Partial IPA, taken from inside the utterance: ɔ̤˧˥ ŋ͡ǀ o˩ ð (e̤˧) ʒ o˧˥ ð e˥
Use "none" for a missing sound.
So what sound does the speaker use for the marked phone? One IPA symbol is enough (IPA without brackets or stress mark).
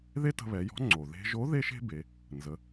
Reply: e̤˧